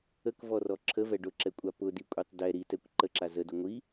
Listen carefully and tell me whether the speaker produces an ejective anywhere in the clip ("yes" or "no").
yes